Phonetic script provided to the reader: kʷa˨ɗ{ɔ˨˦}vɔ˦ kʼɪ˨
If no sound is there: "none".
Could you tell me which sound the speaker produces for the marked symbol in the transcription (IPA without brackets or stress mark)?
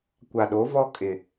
o˨˦